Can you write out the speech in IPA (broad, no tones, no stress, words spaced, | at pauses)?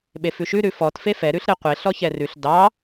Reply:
ɓefʉʃʉ ɾʉfɔt fefɛ ɾʉɬɾeqʷe ɬɔçɛrʉɬ dɑ